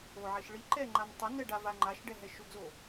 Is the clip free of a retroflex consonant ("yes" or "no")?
no